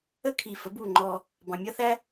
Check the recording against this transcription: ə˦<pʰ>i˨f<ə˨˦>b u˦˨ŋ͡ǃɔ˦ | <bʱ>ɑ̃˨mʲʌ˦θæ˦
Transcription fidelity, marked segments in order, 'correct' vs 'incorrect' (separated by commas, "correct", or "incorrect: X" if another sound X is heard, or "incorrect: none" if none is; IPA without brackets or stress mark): incorrect: kʰ, correct, incorrect: b